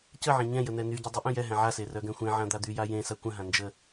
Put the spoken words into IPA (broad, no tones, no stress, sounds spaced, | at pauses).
c ə ʕ ɛ̃ ɲ ɛ̃ j ə n̪ ɛ n y ɟ ə dˤ ə ʔ œ̃ j ɛ ɦ ɛ̃ ʕ a s e r œ ɡ ɛ̃ xʷ ẽ ʕ ã d̪ a d̪ y j a j ẽ s a kʷ ə̃ ɦ ã n d͡ʒ ə